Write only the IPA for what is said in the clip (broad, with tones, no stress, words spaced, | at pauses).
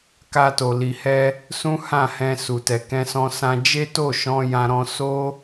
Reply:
ka˧to˨ li˨hɛ˧ | sũ˦hã˦˨hɛ̃˧ su˨tɛ˨ kɛ̃˧sɔ̃˧sã˧ d͡ʒe˦to˦˨ʃɔ̃˧ jã˦ɾɔ̃˦ so˦